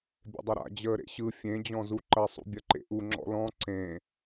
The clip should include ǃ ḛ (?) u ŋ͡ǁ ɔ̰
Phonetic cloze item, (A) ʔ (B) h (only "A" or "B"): A